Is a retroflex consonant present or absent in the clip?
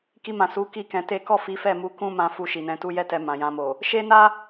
absent